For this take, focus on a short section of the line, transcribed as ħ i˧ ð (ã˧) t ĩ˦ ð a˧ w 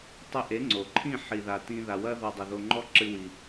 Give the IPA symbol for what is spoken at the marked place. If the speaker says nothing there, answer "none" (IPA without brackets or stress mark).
a˧